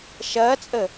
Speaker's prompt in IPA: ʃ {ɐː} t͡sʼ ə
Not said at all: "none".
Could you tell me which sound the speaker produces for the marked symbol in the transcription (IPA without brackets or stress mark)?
ɐː